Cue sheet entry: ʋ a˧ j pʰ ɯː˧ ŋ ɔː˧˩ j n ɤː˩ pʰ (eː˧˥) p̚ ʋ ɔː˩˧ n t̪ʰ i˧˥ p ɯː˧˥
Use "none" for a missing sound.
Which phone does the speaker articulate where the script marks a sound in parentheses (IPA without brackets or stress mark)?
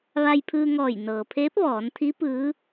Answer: eː˧˥